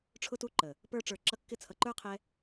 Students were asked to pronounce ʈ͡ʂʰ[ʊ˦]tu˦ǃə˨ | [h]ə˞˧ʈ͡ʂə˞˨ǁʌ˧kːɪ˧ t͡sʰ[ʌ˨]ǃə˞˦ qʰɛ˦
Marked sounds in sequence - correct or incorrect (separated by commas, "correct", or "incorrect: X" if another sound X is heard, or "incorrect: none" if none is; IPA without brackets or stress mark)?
correct, incorrect: p, correct